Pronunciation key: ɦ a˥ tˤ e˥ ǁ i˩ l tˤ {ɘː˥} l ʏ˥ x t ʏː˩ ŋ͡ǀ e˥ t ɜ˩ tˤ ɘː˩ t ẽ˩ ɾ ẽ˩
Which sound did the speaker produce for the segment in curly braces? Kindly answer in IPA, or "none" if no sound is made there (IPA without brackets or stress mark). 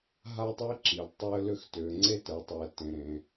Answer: ɘː˥